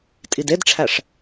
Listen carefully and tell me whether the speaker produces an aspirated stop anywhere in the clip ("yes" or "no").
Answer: yes